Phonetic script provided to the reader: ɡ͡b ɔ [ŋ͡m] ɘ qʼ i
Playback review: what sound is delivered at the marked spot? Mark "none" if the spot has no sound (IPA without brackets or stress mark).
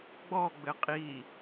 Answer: ɡ͡b